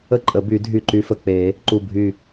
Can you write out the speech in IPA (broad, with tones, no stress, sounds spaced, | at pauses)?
ə˥˨ ǃʼ ə˨˩˦ b y˨˩˦ dʱ y˧˩ ǃ y˧˥ f ə˩ k͡p e˨˩˦ | ǃ u˧˩ bʱ y˧˩